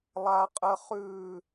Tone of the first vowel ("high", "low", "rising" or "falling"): high